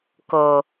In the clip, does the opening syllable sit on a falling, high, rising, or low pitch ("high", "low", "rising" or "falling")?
low